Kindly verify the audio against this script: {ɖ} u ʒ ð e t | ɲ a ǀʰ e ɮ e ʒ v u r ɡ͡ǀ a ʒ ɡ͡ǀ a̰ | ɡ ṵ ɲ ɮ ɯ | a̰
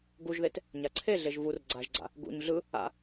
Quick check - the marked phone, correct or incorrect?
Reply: incorrect